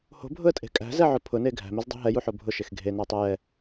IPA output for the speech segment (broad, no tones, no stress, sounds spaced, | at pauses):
h o̤ bʱ ʊ ə̯ tʼ e̤ kʼ æ̤ z ɛ ʕ ʊ pʰ ʊ n e ɡʱ æ̤ m e z dˤ e̤ ɦ ɛ j u ħ o bʱ ʊ ʃ e x ɡʱ e n æ tˤ e j ɛ